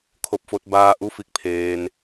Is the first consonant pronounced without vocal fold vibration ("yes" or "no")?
yes